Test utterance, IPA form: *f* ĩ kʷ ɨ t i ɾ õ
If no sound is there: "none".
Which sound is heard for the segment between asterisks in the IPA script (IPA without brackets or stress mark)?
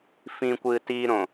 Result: f